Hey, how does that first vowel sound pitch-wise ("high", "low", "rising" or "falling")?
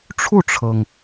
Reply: falling